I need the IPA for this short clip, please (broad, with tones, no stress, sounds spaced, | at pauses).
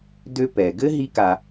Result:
d ø˧ p ɛ˩ ɡ ɘ˥ ɦ i˥ k a˧